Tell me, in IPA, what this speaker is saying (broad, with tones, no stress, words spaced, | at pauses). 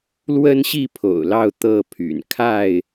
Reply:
lwə˦nɕi˥˨ pʰo̰˨˩ʊ̯lɑ˥˨ʊ̯ t̪ɤ˥˨pʰy̰˨˩n kʰa˥˨ɪ̯